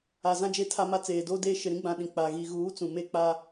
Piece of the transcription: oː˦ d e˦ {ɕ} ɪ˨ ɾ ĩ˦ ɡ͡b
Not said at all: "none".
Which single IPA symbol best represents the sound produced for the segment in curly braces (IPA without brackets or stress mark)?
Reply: ʃ